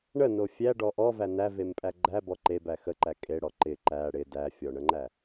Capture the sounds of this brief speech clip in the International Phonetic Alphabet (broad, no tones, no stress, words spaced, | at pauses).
ɳəno fʲæɖɔ ʔɔvæ nævempʼæ ɡ͡ǃæbɔ ǃebæ xəǃæ kʼeɽɔ ǃɪ ǃæ ɽɪ dæfʲɔɳəŋ͡ǃæ